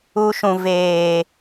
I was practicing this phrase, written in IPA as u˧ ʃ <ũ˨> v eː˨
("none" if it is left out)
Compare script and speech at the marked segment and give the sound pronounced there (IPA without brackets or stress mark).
ũ˨